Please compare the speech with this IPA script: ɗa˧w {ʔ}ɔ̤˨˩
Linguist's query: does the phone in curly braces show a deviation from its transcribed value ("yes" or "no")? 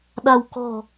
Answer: yes